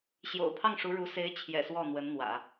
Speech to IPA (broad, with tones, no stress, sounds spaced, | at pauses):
ɕ j o̰˨˩ ʊ̯ pʰ ɑ˥˩ ŋ ʂ u˧˥ ɻ u˧˥ s e˧˥ ɪ̯ t͡ɕʰ j ɛ̰˨˩ s w ɔ˥˩ n̪ w ə˧˥ n n̪ w ä̰˨˩˦